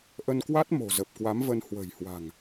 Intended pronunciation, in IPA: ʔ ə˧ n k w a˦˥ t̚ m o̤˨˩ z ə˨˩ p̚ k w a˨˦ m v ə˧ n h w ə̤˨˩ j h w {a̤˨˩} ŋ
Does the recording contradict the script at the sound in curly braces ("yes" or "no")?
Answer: no